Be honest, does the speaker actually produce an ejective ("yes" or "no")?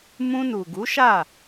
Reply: no